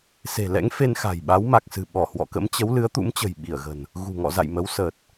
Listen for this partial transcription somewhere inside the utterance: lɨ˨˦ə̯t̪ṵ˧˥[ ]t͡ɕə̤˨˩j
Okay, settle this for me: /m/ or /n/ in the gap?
m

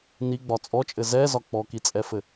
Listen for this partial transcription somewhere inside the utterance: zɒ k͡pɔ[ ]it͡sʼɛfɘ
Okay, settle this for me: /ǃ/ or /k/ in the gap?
k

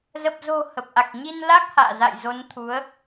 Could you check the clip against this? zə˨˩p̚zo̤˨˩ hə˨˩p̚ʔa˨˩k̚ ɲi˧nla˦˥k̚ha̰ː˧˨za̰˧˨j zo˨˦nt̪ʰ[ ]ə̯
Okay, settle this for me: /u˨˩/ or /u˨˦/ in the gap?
u˨˦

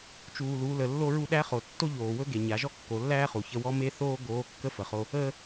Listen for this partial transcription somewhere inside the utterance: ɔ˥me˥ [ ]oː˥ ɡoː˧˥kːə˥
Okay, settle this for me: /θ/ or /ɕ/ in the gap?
θ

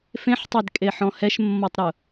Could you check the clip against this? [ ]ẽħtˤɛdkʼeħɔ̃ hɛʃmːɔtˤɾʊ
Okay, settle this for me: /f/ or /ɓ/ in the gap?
f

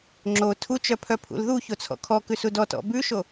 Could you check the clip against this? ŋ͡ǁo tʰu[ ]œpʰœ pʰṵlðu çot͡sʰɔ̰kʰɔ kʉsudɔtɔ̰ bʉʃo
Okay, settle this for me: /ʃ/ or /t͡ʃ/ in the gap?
t͡ʃ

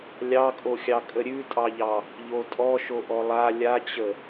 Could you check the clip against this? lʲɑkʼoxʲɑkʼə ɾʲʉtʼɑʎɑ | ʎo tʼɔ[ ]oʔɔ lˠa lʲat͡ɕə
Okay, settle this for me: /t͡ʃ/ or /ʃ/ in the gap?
ʃ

